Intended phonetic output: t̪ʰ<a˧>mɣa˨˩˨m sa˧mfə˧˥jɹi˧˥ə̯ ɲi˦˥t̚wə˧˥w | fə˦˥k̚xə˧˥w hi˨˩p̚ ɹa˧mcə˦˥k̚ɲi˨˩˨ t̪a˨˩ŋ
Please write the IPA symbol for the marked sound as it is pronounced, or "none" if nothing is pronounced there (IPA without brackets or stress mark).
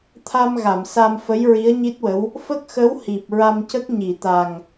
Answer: a˧